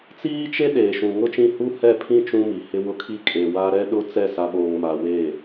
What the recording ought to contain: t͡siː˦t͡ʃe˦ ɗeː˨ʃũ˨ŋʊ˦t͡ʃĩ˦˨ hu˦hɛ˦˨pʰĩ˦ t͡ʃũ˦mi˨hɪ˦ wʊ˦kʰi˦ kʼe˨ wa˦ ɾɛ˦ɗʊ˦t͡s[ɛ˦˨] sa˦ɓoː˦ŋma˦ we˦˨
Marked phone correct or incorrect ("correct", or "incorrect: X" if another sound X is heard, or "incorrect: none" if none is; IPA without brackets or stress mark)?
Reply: correct